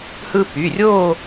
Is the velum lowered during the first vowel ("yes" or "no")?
no